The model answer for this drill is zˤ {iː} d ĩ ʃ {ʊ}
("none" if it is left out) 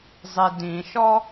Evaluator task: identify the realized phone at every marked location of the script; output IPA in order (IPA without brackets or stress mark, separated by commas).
i, ɔ